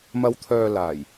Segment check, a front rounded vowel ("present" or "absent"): present